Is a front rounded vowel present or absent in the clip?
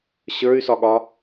present